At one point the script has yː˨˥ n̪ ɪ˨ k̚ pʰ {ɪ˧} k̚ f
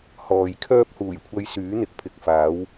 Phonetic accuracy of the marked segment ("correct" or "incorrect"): incorrect